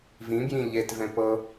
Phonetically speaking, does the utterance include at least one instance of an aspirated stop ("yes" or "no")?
no